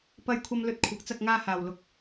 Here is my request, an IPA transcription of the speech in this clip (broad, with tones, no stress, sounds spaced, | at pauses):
p ɐ˧ j kʷʰ ɐ˧ m l ɵ˧ t̚ kʷʰ ɐ˨˥ k̚ t͡s ɐ˧ k̚ ŋ aː˧ h aː˨ w l ʊ˧ k̚